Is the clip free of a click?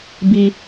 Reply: yes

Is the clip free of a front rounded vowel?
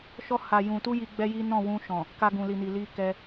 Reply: yes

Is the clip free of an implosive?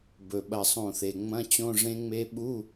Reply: no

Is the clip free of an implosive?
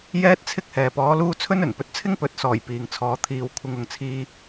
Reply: yes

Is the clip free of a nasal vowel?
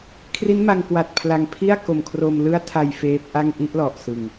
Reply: yes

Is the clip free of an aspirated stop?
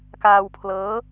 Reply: no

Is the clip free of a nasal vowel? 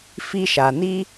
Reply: yes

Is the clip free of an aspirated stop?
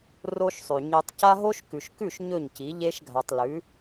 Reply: yes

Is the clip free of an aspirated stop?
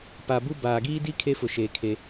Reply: no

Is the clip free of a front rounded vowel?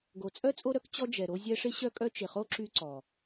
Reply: no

